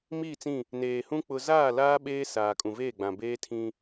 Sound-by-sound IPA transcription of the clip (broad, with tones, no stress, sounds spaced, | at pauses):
m i˦˨ t͡s ĩ˦˨ | n eː˨ h ũ˦ k͡p ʊ˦ z aː˦˨ l aː˦ ɓ eː˦ s aː˨ kʼ ũ˨ v eː˦˨ ɡ͡b ã˨ b eː˦ tʰ ĩ˦